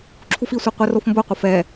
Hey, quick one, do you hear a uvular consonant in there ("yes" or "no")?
yes